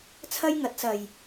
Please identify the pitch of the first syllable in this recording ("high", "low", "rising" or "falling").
high